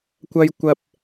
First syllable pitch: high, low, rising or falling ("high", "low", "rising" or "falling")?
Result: high